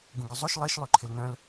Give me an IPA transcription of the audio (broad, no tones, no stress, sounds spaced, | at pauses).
ɡ ũ ɡ ʏ zˤ o ʃ lˠ e ʃ lˠ y ǃʰ ɪ l n œ̃ l